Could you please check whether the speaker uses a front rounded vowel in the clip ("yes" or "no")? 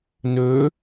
yes